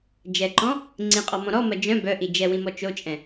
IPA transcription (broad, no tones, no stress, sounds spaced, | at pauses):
d͡ʒ ɛ ǃ ɔ̃ | ŋ͡ǀ ĩ qʼ ɔ m ɔ̃ ɾ ɔ m ɐ d͡ʒ œ̃ b œ ʔ i d͡ʒ ɛ w ĩ m ɔ t͡ʃ o t͡ʃʼ ɛ̃